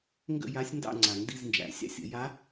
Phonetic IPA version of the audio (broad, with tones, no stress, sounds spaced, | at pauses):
ŋ ɡ ə̰˥˨ j a˧˥ sʲ n d ɑ̰˥˨ ŋ͡ǀ a˨˩˦ ŋ d i˧˥˧ z n d͡ʒ æ̰˨˩˦ sʲ ɑ̰˥˨ sʲ ə̰˨˩˦ j a˧˥